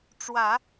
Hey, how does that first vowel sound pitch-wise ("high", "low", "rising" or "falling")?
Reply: low